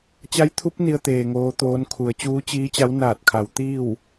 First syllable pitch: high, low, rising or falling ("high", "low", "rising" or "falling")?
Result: rising